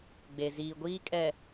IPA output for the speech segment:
ɡ͡be˨ziː˨ɡʷiː˦ kʼɛ˨

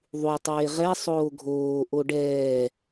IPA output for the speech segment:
ðˤu tˤeːʁɛ sˤoːɡʱoː ʔoɖɛː

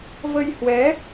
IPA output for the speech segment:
və˧jhwɛ˨˦

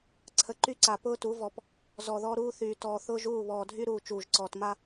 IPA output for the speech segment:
ǀʰə˨ǃy˦ǀa˨ pʊː˦tu˨˦vɔ˨p | zɔ˨ðɔ˦ɾuː˦θyː˨ tɔː˨θʊː˦ʒuː˦˨ βɔː˨dʱy˦ɾuː˨ t͡ʃuː˨ʒǀɔː˨tma˦

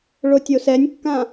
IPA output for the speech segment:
ɭotʲosɛnʲkːã

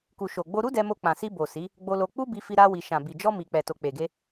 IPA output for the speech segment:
ku˨ʃo˨ɡ͡bo˧ ɾu˦dɛ˧mo˧ k͡pã˨si˧bo˨ si˨˦ | ɡ͡bo˧lo˧ k͡pu˦bi˧fi˧ ɾa˧wi˨ ʃã˨bi˨ d͡ʒɔ˧mi˨k͡pɛ˨ to˨k͡pe˨ɡe˧

